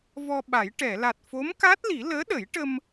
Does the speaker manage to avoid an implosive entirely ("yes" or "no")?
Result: no